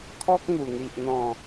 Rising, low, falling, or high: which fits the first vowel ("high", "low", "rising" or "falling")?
high